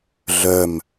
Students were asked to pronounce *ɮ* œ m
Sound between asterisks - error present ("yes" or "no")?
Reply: no